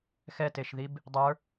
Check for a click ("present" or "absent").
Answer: absent